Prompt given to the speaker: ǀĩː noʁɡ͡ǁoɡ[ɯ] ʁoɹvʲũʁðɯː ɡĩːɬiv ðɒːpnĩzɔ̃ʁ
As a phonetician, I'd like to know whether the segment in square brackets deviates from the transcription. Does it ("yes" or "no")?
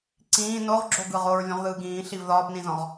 no